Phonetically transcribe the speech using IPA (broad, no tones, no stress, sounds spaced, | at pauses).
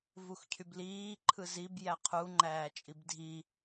v u x cʰ y b l iː ǃʰ ɯ z i b j æ qʰ u ŋ͡ǃ æː t͡ʃʼ i b dʱ i